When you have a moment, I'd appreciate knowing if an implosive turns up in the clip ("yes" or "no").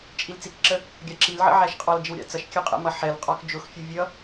no